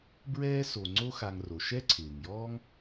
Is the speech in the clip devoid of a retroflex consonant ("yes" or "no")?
yes